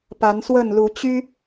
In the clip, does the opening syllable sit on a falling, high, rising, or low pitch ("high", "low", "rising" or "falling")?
rising